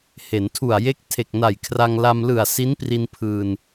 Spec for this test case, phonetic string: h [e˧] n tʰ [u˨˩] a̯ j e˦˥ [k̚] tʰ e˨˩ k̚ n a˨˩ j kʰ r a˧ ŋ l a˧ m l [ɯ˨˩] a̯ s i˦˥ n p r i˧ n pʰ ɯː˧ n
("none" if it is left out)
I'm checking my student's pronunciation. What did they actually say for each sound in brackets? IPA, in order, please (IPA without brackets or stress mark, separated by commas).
e˩˦, u˨˩, k̚, ɯ˨˩